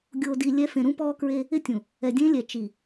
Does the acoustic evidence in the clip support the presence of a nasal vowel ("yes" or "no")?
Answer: yes